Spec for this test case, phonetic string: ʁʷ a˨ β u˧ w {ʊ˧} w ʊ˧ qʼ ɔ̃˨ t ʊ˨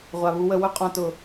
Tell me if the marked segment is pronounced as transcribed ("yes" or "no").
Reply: no